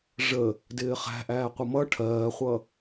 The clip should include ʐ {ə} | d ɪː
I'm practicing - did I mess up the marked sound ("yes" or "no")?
no